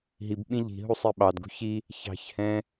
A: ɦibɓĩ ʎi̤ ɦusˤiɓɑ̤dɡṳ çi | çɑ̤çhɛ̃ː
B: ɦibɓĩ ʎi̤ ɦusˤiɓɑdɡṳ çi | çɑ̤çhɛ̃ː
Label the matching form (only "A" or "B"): B